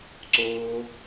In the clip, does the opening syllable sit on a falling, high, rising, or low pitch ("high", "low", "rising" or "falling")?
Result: high